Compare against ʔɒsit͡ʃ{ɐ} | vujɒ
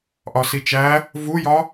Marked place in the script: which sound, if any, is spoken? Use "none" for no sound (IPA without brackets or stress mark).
æ